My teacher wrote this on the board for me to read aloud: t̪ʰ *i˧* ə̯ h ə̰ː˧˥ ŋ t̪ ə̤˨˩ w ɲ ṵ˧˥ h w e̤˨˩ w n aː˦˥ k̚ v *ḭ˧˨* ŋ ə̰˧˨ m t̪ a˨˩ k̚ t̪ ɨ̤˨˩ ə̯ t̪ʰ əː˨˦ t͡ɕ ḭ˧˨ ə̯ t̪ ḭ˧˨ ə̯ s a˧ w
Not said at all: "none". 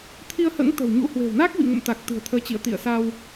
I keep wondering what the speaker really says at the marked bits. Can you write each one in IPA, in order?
i˧, ḭ˧˨

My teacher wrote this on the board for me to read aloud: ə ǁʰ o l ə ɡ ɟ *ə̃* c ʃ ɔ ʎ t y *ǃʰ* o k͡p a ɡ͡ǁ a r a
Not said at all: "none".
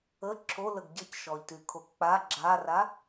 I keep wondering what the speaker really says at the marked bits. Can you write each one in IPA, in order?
ə, kʰ

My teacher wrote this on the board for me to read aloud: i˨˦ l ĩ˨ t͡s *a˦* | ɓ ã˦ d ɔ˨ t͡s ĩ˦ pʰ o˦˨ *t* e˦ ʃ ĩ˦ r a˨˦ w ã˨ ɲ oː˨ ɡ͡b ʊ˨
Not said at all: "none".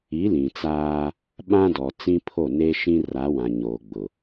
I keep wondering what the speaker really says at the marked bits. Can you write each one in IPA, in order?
aː˦, n

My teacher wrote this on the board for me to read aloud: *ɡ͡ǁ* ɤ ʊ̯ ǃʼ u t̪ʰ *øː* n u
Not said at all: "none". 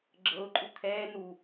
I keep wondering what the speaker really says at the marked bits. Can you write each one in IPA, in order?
ɡ͡ǁ, ɛː

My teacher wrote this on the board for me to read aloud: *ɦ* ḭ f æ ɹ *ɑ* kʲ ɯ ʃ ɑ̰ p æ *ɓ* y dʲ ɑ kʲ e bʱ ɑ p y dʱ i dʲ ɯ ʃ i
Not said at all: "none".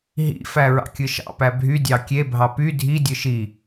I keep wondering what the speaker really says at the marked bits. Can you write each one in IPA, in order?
ɦ, ɑ̰, bʱ

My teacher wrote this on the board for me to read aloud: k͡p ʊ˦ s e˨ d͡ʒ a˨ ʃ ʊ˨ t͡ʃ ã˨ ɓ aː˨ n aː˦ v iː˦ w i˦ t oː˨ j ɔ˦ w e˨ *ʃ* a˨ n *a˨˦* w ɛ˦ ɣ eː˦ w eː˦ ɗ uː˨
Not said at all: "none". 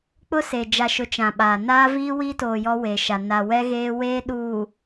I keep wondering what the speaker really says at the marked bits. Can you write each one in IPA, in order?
ʃ, a˨

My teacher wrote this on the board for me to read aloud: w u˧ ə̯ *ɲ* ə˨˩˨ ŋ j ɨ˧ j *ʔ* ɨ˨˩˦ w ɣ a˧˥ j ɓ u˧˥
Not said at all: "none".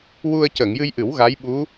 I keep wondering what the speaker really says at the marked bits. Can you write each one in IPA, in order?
c, ʔ

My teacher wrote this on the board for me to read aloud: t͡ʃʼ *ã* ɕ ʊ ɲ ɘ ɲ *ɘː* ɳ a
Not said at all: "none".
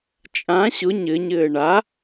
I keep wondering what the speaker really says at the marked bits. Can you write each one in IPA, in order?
ã, ɘː

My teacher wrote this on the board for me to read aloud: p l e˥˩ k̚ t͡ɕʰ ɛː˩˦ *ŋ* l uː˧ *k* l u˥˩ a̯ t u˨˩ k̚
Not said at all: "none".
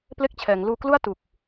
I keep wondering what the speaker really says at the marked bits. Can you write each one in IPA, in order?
ŋ, k

